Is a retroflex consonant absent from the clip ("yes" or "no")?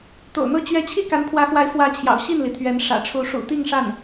no